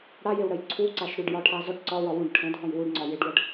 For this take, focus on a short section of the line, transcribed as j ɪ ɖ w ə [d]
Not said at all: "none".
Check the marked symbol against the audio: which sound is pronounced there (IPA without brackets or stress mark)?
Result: ɖ